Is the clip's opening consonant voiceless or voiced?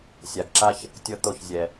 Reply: voiceless